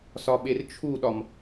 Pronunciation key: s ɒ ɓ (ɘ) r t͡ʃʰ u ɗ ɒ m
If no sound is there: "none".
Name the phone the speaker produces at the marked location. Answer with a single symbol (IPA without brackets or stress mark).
e